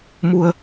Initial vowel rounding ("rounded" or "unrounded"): rounded